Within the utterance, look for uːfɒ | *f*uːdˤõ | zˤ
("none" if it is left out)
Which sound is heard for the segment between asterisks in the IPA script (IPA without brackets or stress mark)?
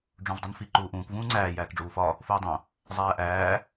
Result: f